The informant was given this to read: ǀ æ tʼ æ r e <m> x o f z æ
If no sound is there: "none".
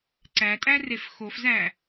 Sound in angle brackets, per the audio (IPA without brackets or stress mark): f